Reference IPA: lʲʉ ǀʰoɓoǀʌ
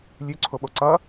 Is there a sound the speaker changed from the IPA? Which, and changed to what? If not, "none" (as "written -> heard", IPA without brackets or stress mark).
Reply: none